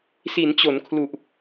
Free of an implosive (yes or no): yes